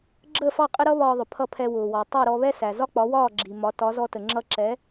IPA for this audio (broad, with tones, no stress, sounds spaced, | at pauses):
ɡ͡ǁ əː˥˩ f ɑ˥˩ qʼ ɪ˥ ɾ ʌ˥ β ɒː˧ ðˤ ʊ˩ pʰ ʌ˥˩ pʰ ɛ˧ w ʊː˩ w ɒ˩ tˤ ɜ˥˩ ɾ ɔ˧ β ɛ˥ s æ˩ z ɒ˥ k͡p ɒ˩˥ w ɒː˥˩ ɡ͡ǁ i˩ m ɒ˩˥ t ɒ˩˥ z ɔ˧ t ə˩ ŋ͡ǁ ʌ˧ ǁ ɛ˩˥